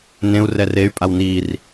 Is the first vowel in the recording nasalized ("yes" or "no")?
yes